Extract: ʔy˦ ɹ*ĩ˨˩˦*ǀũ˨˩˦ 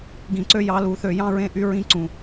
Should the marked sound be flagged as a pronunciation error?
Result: yes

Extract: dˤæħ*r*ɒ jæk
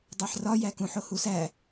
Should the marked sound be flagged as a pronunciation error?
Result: no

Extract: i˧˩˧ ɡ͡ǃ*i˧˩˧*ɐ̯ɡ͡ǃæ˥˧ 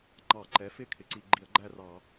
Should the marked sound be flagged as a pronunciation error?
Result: no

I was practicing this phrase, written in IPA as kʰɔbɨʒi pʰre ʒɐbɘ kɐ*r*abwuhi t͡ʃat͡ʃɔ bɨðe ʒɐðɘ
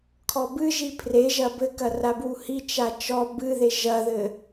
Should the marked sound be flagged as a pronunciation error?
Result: no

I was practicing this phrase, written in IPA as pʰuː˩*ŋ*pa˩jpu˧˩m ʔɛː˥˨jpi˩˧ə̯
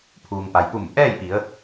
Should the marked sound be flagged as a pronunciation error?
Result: no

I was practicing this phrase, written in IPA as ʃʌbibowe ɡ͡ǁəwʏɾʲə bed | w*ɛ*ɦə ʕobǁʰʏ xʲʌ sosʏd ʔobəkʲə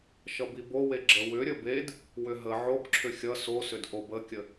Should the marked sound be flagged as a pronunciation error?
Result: yes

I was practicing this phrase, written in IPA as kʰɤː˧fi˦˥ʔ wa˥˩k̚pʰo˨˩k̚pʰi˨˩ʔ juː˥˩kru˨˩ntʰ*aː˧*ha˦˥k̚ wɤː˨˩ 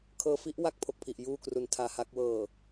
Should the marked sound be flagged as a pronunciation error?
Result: no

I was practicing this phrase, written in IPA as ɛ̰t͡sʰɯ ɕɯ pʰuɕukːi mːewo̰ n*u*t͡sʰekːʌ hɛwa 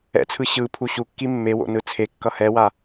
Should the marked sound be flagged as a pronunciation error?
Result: yes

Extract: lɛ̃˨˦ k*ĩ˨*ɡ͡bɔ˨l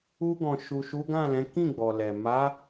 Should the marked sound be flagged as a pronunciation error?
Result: yes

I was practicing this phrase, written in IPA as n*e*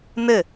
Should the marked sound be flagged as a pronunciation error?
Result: yes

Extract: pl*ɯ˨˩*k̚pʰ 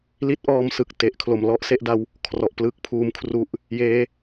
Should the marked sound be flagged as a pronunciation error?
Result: yes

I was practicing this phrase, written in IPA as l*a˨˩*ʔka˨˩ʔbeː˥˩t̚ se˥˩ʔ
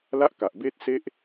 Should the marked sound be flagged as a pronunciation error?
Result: yes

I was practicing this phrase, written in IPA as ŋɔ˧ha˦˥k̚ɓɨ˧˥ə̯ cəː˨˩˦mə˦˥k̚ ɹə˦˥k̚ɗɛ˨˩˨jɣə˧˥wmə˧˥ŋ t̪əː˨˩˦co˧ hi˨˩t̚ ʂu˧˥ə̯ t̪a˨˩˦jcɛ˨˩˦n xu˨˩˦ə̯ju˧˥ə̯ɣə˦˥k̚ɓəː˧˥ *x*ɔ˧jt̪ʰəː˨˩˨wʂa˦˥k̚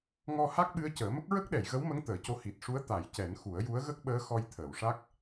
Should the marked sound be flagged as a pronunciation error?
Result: no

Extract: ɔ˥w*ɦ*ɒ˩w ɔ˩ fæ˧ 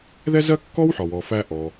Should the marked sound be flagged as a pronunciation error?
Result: yes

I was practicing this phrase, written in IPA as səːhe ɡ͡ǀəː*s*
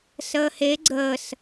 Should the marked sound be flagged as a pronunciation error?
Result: no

